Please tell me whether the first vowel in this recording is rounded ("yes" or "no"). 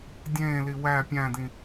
no